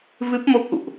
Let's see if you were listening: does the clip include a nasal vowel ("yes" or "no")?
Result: no